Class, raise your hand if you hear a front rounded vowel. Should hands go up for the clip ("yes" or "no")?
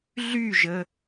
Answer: yes